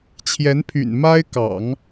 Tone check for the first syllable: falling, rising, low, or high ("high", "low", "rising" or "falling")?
rising